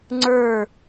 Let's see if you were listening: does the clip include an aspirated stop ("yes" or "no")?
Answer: no